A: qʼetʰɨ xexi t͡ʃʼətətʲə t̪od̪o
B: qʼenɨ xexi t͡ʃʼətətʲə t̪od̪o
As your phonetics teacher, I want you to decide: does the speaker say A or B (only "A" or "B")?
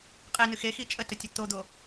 B